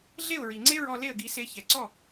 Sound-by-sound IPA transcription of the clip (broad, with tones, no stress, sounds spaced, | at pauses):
ɮ e˥˩ ʊ̯ ɹ i˩ ŋ͡ǀ e˥ ɹ ɔ˧ l e˥˩ ə̯ ɡ i˧ s e˧ ç ɛ˩ ǀ ɔ˥˩